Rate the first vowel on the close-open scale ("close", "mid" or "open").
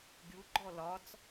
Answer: close